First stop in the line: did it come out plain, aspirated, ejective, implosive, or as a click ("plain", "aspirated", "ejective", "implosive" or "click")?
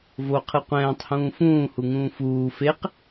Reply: aspirated